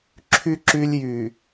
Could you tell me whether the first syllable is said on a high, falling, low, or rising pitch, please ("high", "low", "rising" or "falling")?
low